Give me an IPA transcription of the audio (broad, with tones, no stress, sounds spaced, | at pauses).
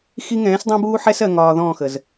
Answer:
x i˦ ŋ ɛ̃ː˨˦ s dˤ ɛ̃˦ b uː˦ ħ ɛ˦ s ɜ˨ ŋ ɒː˨ ð ɔ̃ː˦˨ x ə˨ z